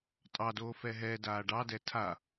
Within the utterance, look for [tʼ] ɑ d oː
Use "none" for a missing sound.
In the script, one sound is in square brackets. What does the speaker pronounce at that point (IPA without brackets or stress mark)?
tʼ